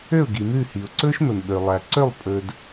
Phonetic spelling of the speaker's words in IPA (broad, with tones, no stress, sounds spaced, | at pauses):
ø˦˨ ʊ̯ ɡ i˨ m ʉ˦˨ h i˨ ʊ̯ ǀ ɵ˦ ʃ m ɵ˨ m ɓ ø˨ lˠ æ˨ ǀ ø˦˨ lˠ pʼ ɵ˨ d